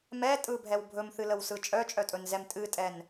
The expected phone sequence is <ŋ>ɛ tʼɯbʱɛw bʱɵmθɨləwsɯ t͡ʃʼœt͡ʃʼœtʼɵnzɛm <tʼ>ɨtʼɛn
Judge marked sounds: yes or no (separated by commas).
no, yes